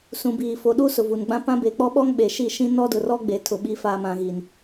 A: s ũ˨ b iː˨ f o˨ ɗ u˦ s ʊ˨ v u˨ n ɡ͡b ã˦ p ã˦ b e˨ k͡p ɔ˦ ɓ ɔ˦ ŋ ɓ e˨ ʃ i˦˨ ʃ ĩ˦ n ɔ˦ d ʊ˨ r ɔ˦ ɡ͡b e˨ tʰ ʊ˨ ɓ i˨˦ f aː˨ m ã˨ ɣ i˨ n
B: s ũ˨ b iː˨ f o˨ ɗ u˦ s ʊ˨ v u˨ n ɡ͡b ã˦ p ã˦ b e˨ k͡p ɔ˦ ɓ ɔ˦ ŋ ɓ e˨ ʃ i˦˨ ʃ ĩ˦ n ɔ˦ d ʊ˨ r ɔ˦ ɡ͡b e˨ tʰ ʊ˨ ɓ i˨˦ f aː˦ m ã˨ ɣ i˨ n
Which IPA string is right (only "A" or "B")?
A